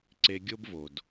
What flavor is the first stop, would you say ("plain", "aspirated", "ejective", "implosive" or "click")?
click